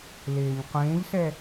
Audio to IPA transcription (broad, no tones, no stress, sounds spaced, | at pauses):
l eː ɲ qʷ ẽː ʎ s ɛ